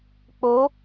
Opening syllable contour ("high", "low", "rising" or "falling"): rising